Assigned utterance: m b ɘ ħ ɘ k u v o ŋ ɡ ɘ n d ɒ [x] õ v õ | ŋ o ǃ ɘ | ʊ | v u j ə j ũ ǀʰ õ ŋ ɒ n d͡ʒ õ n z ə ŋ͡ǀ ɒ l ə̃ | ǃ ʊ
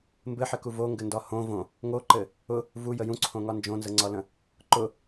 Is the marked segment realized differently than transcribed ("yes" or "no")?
yes